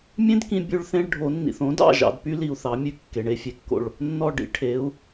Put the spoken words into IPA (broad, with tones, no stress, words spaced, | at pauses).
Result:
mʲẽ˥dkĩ˧ bʲʉ˥ɭθẽ˥ɭ ɖʱo˩˥nːḭ˩θ õ˩˥dɑ̰˥˩ ʒɑ̰˧dpy˥ li˧u̯θɑ˩˥mʲʉ˥˩ kːe˩ɳe˧fʲe˩kːo̰˥˩ɭ | nːɔ˥˩ ɖḭ˩˥ ʈʰe˩˥u̯